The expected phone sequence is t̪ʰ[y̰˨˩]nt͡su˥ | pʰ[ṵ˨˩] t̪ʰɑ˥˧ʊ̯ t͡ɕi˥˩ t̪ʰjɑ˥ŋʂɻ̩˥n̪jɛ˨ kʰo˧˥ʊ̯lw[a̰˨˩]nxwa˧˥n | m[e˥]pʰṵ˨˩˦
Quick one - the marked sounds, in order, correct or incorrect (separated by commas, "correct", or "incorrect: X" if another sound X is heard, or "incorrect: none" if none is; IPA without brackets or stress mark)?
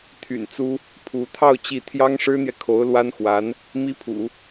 correct, incorrect: u˧˥, incorrect: a˥, incorrect: i˥